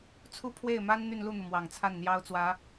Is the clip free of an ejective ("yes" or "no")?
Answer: yes